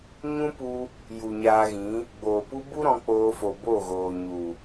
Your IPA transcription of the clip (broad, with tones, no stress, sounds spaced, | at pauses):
ɲ ũ˦ p u˧ | j u˨ ɲ aː˧ ɣ ĩ˨˦ | ɡ͡b oː˨ p u˦ b u˦ ɾ ɔ̃˧ k͡p oː˧ f o˨ b o˦˨ ɣ oː˨ ɲ u˨